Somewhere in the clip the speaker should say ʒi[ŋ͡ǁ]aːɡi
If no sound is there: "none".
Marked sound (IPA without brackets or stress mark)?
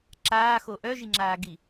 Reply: ŋ͡ǁ